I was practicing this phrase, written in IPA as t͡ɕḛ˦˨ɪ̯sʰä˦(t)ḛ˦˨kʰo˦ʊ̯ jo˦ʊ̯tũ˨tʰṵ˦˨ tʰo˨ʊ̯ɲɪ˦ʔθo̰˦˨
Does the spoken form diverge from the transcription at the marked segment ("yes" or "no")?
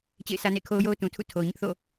yes